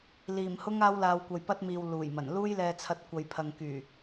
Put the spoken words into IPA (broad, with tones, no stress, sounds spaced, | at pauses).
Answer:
l iː˨˩ m h ʊ˧ ŋ aː˧ w l aː˨ w kʷ ɐ˨ j p ɐ˧ t̚ m iː˨ w l uː˨˩ j m ɐ˨˩ n l uː˧ j l ɛː˨ t͡sʰ ɐ˨ t̚ kʷ ɐ˨ j pʰ ɐ˨ ŋ k yː˨˩